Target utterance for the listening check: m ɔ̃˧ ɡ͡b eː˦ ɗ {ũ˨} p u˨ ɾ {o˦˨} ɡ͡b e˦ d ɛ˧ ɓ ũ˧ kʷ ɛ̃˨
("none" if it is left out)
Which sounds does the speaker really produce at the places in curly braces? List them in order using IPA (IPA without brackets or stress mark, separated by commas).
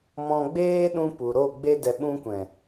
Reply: ũ˧, o˦˨